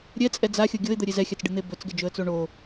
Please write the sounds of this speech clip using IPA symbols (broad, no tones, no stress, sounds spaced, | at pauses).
ɾʲ ɛ t͡sʼ ɛ d͡z a xʲ ɤ ɡʲ ɤ ɪ̯ d̪ ə ɾʲ e z ɛ xʲ a t͡s ɖ ɨ n̪ e b ɵ t͡s ɡ ɛ d͡ʒ ɵ ə̯ t͡s o ɳ o